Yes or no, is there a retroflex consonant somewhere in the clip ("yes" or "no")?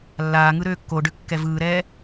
yes